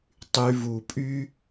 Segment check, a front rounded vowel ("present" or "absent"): present